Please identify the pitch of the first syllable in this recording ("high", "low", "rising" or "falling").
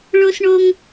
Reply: high